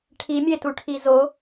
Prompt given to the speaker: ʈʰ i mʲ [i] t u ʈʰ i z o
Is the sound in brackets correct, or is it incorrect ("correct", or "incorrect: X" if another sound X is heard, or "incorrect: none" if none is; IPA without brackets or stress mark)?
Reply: incorrect: e